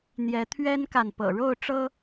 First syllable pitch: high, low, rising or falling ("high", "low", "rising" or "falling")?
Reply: rising